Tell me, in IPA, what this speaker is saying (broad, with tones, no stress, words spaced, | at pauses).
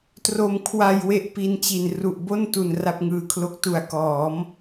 tro˧mkʰwa˧j we˥˩ʔpi˧nt͡ɕi˨˩n ru˨˩ʔbo˥˩ntu˨˩n ra˥˩p̚ŋɯː˨˩kʰlo˦˥k̚ tu˨˩a̯kɔː˩˦m